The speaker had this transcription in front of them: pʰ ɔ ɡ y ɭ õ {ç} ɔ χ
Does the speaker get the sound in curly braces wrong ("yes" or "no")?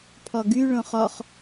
yes